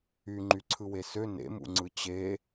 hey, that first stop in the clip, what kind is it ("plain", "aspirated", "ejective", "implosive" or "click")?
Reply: click